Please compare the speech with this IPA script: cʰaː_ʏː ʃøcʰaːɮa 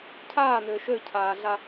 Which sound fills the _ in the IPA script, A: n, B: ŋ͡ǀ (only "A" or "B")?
A